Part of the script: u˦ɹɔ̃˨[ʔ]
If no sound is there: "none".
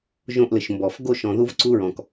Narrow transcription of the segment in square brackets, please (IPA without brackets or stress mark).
k